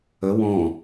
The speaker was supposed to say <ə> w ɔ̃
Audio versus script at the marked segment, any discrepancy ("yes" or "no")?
no